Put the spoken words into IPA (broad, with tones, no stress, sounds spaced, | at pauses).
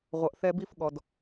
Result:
ʁʷ ʌ˨ ʔ θ ɛ˧ b i˧ f ɠ ɔ˨ d